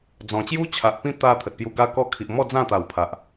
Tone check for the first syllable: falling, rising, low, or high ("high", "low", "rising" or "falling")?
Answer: low